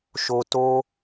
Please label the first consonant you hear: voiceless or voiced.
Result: voiceless